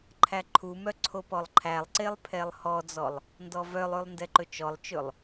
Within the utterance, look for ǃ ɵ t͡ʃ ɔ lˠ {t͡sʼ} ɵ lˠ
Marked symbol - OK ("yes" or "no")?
no